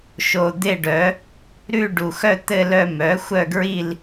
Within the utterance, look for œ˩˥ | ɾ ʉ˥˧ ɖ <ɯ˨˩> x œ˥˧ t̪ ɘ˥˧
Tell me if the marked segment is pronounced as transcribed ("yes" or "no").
no